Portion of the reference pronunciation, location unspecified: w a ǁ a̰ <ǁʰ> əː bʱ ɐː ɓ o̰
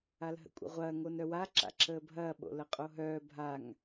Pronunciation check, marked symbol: correct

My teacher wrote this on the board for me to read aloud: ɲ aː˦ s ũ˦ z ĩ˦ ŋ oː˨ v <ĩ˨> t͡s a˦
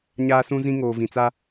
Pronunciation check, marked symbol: correct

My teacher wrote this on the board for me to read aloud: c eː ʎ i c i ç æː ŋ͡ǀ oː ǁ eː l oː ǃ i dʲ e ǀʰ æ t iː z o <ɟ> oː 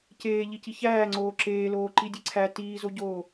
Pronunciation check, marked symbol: correct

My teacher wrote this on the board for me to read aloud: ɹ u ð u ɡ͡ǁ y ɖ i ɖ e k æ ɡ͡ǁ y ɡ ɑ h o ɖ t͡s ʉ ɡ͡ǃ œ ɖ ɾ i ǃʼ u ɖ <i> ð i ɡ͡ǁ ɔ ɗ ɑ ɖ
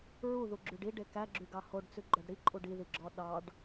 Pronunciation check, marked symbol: correct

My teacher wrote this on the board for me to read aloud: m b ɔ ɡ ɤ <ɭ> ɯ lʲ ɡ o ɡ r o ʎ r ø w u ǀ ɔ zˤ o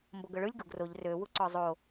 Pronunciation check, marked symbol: correct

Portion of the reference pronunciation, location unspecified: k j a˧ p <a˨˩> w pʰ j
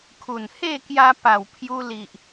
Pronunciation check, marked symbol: correct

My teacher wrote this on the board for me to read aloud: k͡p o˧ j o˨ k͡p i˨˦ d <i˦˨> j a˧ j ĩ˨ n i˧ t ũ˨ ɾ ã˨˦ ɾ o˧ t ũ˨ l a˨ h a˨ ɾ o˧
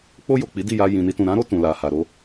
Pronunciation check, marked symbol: correct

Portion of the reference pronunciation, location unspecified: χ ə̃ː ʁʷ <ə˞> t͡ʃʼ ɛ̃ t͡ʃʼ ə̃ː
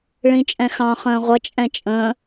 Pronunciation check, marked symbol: incorrect: ʌ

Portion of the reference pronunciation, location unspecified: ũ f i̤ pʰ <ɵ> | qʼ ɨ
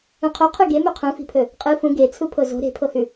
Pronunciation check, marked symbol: correct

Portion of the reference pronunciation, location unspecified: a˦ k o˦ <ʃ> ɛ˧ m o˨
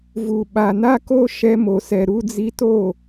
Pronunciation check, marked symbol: correct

